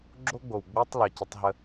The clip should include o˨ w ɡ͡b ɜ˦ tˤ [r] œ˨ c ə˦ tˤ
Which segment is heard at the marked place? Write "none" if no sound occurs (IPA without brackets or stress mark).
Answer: l